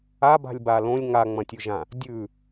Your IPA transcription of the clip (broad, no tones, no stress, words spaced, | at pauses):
aba̤lʲ balõlʲ ŋaŋ͡mɐ̃tʲʉʒã | dʲʉ